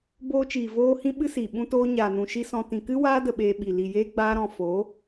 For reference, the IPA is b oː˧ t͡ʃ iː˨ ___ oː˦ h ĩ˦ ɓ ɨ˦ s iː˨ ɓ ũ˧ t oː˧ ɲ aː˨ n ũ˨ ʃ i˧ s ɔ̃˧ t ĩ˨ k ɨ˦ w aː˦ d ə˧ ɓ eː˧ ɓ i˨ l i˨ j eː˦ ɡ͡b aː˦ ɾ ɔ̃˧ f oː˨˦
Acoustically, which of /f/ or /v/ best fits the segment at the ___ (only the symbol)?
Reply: v